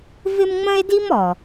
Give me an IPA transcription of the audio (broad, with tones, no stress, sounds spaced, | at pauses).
v ɪ˥ m ŋ͡m ə̃˥ e̯ d i˥ m ɔ˩